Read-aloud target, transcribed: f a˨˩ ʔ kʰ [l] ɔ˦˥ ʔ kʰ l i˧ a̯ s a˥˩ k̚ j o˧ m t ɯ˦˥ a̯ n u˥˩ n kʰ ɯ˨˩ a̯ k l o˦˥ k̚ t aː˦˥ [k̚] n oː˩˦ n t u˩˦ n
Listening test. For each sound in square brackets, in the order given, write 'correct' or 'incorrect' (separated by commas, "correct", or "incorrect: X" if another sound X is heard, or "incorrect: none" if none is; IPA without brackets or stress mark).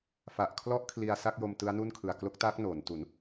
correct, correct